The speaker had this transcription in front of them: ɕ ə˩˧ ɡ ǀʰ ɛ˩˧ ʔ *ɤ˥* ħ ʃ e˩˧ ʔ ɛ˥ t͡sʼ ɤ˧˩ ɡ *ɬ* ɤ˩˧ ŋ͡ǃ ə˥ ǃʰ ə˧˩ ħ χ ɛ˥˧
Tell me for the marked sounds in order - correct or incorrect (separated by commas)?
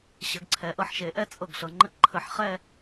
incorrect, correct